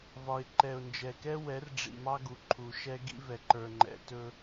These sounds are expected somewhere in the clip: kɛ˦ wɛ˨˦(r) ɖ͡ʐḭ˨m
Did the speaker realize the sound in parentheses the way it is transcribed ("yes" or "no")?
yes